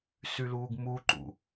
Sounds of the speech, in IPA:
s y l uː ɡ m u ǃ ṵ

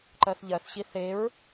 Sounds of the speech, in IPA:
ǃ ɜ θ ʎ ɜ θ ɕ i θ e ɹ

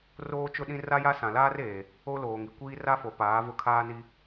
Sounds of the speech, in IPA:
r oː˦ t͡ʃ ʊ˦ ɗ ĩ˦ r a˦ j a˦ s ã˨ l aː˦ r eː˨ | o˦ l oː˨ ŋ i˨ kʷ iː˦ r a˦ f o˨ p aː˨˦ v ʊ˦ kʰ aː˦ n i˦

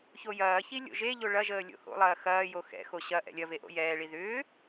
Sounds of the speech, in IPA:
ç o j ɐː ç i lʲ o̰ ʒ e ʎ o ɭ ɐ ʒ əː lʲ o̰ h o̰ lˠ ɐː x ɐː j o x ɛ̰ x o ɕ ɐ ʔ ɛ̰ lʲ ɐ v e ʔ o̰ j ɛː ɭ i ð ʏː

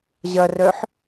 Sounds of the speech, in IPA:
ʑ ɐ r œ ħ

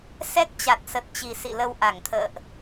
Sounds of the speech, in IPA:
s ɛ˦˥ k̚ t͡ɕ a˨˩ t̚ s ə˨˩ t̚ t͡ɕ i˨˩ s ḭ˧˨ l ə˧ w ʔ a˧˩ ŋ t̪ʰ ə̰ː˧˨ ʔ

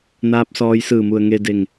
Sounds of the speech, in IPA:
n aː˧˥ p̚ s ɔː˧ j s ɯː˧˩ m u˩ ə̯ ŋ e˧ d e˧˩ ŋ

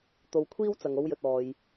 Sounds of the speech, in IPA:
t̪ o˧ w kʷʰ iː˥ w t͡s ɐ˨ ŋ o˧ w j ɵ˨ t̚ ɔː˨ j

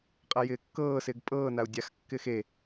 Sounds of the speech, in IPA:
qʼ a j ɪː kː ɤː s ɪː ɡ pʼ ɤː n a u̯ dʲ a x kː ɪː x e

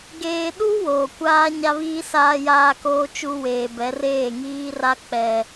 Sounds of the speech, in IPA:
ɡ eː˨ ɗ u˦ w oː˨ kʷ aː˦ ɲ a˦ β iː˦ s aː˨ j aː˨ k oː˨ t͡ʃ u˨ w eː˨ b ɛ˨˦ r eː˦˨ ŋ iː˦ r a˦ k͡p ɛ˦

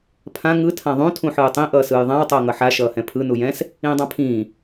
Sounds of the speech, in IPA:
pʰ ã ŋ ɯ tʰ ã ðˤ ũ tʰ ũ ħ ɯː tˤ ĩ ʔ ʌː s ɯː j ðˤ ã w tˤ ʌː ŋ ʌ ħ a ʃ ʌː h ɛ̃ pʰ ɯ n u j ɛ̃ s | ĩː dˤ ã pʰ ĩː

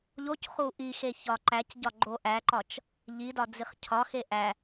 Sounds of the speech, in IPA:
ʎ o c χ u ʔ i x e ç ɒ ǃ æ c ɟ ɒ ɡ͡ǃ o ʔ æ ǃ ɒ t͡ʃ | ʎ i d ɒ d͡z i χ cʰ ɒ x e ʔ æ

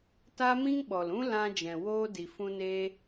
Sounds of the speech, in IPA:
t aː˦ m ĩ˦ ŋ ɓ ɔ˨ l ũ˦ l ã˧ d͡ʒ ɛ̃˨ w oː˧ d i˨ f ũ˧ n eː˦

